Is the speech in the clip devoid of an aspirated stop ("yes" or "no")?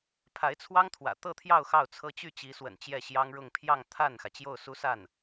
no